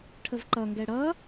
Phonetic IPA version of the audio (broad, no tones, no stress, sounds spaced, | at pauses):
ʈʰ ə v ǃ ʌ ŋ ɡ ɛ ɽ ʌ